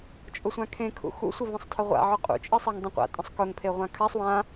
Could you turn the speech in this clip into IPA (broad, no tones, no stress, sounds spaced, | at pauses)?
t͡ʃʼ ʊ sʷ ã kʰ ẽ kʰ ṵ x ṵ sʷ ə v ə̃ sˤ tʰ ə ʁʷ a̰ ʕ ʊ qʼ ṵ t͡ʃʼ e sˤ a ŋ dˤ ə̃ qʷ a̰ tʼ ə̃ sˤ k ʊ ŋ pʰ e ʁʷ ã kʰ a sˤ w ã